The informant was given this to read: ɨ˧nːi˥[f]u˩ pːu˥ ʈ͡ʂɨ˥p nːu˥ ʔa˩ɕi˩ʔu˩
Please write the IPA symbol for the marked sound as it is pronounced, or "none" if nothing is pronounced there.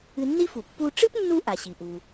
f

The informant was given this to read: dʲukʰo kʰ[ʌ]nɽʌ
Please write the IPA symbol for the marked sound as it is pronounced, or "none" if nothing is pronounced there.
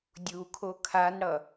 a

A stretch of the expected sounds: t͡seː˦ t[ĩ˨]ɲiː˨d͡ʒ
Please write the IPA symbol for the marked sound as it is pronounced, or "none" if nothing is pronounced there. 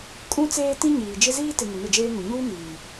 ĩ˦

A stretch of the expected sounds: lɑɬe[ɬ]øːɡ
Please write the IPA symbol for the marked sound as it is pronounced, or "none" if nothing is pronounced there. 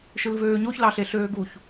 ɬ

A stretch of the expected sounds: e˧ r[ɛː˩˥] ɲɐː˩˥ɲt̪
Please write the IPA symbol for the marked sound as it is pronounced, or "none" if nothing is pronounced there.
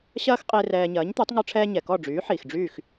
ɛː˧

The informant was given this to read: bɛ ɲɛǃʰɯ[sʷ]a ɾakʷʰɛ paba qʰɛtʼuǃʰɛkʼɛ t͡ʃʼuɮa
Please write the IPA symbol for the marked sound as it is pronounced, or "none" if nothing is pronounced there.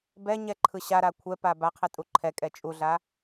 ɕ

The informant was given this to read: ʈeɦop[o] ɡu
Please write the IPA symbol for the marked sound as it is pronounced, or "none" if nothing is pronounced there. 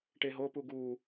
u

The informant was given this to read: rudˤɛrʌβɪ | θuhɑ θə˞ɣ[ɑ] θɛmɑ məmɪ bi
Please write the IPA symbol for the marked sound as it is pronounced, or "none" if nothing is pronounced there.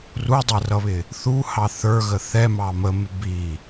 ə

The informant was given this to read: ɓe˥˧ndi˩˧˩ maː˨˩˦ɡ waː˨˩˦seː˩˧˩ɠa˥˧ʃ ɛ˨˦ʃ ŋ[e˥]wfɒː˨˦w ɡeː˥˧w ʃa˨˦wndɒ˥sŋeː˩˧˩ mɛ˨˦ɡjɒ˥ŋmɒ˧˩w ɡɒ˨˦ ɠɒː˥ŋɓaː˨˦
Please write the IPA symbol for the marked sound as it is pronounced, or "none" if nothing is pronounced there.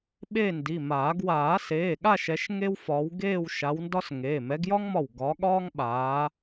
e˥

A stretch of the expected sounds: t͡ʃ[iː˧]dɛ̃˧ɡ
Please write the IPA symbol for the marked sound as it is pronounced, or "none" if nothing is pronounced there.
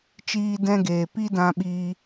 iː˧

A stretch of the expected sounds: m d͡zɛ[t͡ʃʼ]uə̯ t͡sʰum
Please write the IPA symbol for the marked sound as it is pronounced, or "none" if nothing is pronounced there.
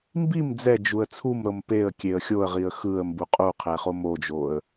d͡ʒ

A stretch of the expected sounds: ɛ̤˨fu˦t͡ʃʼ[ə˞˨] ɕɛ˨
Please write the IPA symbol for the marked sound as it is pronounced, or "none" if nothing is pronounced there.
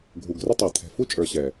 ə˞˨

